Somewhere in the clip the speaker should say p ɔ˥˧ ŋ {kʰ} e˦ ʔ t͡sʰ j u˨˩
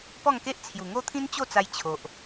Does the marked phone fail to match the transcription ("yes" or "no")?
yes